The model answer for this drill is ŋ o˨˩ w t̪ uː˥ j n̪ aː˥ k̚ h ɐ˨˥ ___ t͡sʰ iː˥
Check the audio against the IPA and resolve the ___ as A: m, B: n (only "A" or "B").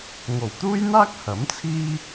A